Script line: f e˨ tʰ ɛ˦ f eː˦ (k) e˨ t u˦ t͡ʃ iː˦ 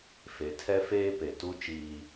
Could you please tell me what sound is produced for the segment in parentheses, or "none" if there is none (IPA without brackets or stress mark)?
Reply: p